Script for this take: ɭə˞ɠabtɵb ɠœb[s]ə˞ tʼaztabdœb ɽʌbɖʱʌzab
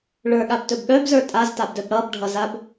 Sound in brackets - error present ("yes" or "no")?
yes